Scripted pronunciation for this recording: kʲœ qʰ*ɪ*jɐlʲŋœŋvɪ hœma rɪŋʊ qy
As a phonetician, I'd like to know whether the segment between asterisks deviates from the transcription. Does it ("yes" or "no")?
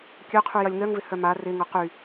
yes